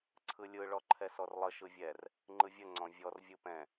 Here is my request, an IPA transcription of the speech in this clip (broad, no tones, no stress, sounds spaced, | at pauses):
ǀʰ ɯ lʲ ɯ ɭ ɔ ǃʰ ɛ s ɔ r lˠ ə ʃ ɯ vʲ ɛ r | ŋ͡ǃ ɯ vʲ ə ŋ͡ǀ ɔ̃ vʲ ɔ r vʲ ɯ p ɛ̃